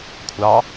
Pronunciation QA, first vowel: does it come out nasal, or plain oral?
oral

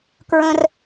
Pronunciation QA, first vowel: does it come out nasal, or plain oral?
nasal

